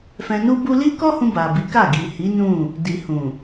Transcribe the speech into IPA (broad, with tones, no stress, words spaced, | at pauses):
fɛ̃˧nu˦bu˦ li˦kɔ˦hũ˧ ba˨bi˨˦ka˦˨ ɡi˨hi˨˦ nũ˦˨ | di˨hũ˨